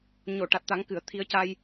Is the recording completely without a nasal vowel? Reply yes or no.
yes